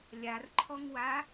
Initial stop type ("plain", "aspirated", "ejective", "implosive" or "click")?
click